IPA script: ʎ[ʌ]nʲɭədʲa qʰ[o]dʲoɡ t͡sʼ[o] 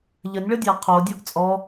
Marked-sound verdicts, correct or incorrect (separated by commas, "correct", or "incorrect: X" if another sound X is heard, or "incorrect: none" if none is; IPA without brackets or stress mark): incorrect: ə, correct, incorrect: ɔ